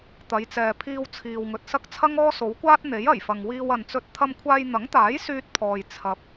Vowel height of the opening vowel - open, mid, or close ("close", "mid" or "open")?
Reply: open